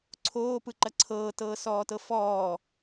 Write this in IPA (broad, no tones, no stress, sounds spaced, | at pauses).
ǀʰ oː p ɯ ǃ ɐ ǀʰ ɤː t ɤː s ɔː t ɤ f ɔː